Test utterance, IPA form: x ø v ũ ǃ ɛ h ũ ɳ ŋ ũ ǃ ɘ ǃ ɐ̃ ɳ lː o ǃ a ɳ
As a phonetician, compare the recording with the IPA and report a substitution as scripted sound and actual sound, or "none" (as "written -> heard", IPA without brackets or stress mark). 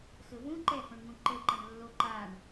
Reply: ø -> ɘ